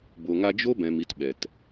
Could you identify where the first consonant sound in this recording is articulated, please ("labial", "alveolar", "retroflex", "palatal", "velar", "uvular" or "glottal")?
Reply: labial